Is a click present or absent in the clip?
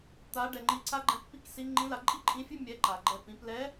present